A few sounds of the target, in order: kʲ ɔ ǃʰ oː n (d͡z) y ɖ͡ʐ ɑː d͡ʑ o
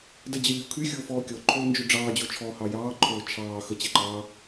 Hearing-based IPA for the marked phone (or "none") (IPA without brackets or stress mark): d͡ʒ